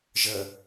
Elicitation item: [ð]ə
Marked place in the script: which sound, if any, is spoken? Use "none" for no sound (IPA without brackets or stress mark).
ʒ